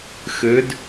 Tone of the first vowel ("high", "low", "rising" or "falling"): rising